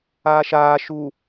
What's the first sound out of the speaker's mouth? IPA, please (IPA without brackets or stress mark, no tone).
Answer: aː